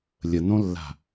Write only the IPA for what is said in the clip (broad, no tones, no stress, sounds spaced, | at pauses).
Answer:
lʲ ə n õ lː a̤